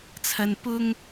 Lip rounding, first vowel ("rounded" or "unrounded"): unrounded